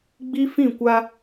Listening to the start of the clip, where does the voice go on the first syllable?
high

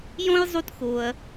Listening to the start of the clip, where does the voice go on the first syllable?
high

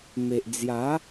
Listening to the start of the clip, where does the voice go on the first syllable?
low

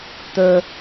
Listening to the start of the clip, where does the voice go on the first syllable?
low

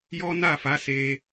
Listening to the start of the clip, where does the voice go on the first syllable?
high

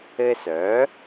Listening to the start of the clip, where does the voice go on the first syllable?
high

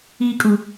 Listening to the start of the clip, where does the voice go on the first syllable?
high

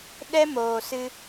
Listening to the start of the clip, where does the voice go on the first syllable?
high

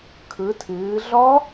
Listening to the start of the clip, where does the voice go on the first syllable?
rising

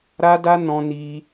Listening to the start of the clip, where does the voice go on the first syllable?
high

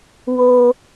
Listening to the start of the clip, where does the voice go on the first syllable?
high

